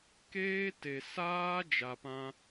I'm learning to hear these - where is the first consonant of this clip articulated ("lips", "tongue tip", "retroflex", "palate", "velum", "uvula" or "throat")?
velum